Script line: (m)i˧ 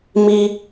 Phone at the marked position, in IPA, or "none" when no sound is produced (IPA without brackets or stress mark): m